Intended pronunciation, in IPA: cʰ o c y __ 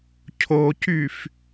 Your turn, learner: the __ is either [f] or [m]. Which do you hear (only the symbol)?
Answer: f